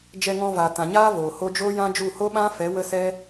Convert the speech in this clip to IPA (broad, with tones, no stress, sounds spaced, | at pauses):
d͡ʒ ɛ˧ ŋ ɔ̃˧ v a˨ t ã˨ ɲ aː˦ v oː˨ h o˦ d͡ʒ oː˦ j ã˦ d͡ʒ u˦˨ h o˦ ɓ ã˦ f ɛ˨˦ w ə˦ s ɛ˦